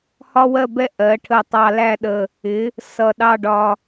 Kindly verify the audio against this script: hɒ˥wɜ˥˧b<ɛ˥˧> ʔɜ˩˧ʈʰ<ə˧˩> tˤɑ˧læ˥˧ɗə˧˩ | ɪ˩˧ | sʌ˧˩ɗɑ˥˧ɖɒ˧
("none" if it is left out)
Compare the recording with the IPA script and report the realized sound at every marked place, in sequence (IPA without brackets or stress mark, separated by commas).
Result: ɛ˥˧, ə˧˩